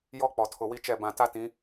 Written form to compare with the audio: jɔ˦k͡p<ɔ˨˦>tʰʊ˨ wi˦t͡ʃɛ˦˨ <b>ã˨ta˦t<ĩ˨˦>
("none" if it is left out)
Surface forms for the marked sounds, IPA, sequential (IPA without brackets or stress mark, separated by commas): ɔ˨, b, ĩ˨˦